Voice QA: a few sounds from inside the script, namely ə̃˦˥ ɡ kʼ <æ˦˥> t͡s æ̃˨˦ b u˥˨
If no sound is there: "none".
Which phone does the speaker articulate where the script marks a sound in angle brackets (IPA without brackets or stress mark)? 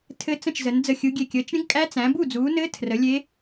æ˦˥